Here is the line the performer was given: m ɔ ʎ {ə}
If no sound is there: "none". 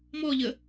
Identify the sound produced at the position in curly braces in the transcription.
ə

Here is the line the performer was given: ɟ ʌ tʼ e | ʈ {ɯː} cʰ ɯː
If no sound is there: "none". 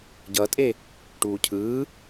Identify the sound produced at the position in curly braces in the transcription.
uː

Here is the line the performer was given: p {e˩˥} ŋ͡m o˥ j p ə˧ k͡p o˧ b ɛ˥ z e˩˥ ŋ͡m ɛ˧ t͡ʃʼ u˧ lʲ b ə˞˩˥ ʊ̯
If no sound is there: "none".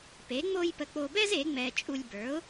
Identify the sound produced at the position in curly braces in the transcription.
e˩˥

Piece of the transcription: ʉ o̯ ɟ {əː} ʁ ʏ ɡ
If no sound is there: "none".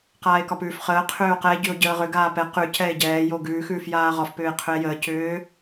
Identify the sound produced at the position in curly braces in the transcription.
əː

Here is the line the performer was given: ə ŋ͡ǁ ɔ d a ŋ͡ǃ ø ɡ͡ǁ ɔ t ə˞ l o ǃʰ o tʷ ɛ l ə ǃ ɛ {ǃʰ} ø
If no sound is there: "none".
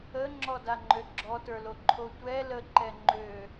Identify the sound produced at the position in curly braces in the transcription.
ŋ͡ǃ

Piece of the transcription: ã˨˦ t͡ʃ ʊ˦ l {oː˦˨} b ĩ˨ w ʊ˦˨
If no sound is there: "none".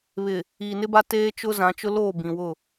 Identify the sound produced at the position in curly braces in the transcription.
oː˦˨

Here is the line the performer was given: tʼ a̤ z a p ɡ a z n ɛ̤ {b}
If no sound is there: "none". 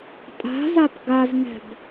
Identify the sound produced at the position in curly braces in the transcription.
b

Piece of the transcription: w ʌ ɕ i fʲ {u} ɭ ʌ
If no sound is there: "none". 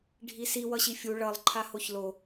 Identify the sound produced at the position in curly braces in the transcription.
u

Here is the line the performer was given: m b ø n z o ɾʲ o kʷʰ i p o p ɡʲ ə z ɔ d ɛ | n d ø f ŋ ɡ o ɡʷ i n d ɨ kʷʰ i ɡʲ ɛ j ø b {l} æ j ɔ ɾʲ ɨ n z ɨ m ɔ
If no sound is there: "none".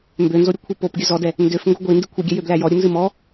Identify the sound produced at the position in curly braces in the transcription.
l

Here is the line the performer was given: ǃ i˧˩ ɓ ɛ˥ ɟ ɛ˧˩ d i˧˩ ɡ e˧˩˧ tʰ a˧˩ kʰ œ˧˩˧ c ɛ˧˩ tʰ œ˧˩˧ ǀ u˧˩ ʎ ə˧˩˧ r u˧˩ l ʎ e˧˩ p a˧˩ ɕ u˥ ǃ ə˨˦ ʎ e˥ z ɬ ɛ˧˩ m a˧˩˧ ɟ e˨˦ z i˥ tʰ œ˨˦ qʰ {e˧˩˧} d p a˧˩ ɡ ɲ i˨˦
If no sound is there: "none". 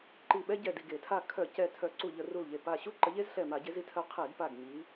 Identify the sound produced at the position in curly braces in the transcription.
e˧˩˧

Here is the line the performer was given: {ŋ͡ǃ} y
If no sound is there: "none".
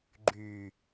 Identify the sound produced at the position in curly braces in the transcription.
ɡ͡ǃ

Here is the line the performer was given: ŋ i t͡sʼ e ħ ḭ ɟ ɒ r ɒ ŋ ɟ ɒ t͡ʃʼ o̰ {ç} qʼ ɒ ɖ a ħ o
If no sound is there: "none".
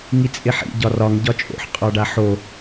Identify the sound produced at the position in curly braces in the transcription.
ħ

